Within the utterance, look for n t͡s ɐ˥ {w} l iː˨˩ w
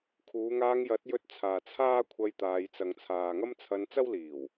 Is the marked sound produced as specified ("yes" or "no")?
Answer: yes